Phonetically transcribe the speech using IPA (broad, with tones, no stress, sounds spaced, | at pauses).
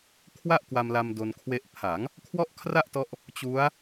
kʰ w a˥˩ ʔ k w a˧ m l a˧ m d o˧ n kʰ w e˦˥ ʔ pʰ a˩˦ ŋ | kʰ w ɔ˥˩ ʔ kʰ r a˥˩ ʔ t ɔ˦˥ ʔ | t͡ɕ u˦˥ a̯